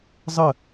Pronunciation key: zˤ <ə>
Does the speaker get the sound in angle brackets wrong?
no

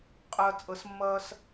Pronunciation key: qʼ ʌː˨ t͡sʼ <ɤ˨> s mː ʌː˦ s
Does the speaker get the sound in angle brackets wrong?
no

